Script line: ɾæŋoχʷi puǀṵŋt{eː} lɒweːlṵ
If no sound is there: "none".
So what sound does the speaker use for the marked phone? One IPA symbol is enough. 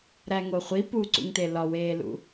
e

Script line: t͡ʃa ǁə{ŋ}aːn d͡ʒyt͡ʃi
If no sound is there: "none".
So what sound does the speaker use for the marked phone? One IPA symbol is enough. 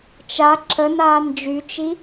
n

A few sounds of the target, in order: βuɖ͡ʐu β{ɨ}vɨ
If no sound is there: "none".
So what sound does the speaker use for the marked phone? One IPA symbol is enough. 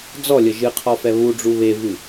e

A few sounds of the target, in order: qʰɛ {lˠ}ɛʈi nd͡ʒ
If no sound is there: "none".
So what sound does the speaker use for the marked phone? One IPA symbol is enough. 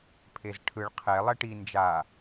lˠ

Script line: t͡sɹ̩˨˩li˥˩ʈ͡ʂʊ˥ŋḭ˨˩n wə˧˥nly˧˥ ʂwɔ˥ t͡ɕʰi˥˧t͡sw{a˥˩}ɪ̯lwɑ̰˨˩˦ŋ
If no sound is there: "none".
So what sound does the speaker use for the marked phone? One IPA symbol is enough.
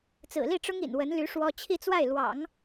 a˥˩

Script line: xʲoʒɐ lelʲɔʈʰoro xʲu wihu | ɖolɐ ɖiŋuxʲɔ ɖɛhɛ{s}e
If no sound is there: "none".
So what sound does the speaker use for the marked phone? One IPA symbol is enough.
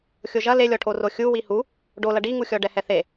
θ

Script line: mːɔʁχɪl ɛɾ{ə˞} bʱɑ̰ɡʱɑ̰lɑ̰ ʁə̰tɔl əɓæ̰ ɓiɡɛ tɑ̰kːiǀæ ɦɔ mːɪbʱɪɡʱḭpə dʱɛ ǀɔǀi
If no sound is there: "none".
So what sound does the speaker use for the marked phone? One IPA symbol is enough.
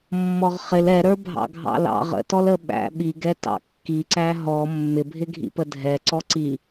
ə˞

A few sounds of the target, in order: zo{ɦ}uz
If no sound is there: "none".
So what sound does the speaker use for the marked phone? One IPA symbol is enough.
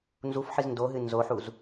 ħ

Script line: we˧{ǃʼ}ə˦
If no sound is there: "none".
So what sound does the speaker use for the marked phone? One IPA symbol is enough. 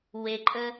ǃʼ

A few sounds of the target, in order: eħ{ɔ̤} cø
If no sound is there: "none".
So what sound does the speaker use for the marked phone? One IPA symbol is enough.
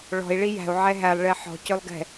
ɔ̤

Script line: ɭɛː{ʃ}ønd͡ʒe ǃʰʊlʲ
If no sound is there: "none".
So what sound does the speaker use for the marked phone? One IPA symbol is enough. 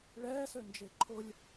s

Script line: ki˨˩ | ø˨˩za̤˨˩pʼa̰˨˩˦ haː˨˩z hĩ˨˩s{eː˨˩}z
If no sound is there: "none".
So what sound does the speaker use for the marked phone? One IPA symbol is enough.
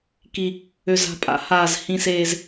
eː˨˩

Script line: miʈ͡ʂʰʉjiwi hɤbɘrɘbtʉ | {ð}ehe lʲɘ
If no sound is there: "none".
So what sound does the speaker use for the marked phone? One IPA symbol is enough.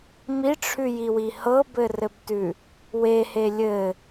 w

